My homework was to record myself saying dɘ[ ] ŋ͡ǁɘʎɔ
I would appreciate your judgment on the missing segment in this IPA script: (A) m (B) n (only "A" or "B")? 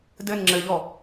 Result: B